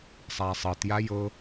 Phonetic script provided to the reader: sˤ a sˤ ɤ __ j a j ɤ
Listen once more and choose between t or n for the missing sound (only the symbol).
t